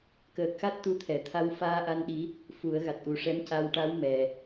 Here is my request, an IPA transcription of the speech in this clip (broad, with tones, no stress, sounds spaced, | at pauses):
k əː˨˩ k̚ x a˦˥ t̚ t̪ u˧ t̪ʰ ɛ˨˩˨ t̪ʰ a˧ w f aː˧ ʔ a˧ n ɗ i˧˥ | f u˨˩˦ ə̯ ɣ a˨˩ t̚ ʔ u˨˩ ʂ ɛ˧˥ m c a˧ w ʈ a˧˥ w m ɛ˨˩